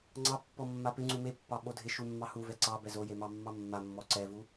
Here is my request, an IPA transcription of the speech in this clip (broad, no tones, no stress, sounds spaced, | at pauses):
ŋ͡ǀ ɑ pː ɔ mː a p ɪ ŋ͡ǀ u m e pː ɑ ɓ o dʱ ɪ ʃ u mː ɑ h u v ɛ ǀ ɑ b ɛ z o j e m ɑ mː ɑ mː a mː ɔ ǀ ɛ v u